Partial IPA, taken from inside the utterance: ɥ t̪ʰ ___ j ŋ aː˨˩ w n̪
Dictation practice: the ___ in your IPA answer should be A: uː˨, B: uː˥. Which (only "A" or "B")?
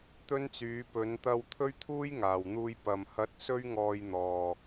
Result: B